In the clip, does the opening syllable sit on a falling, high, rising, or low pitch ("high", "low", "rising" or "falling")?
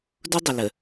high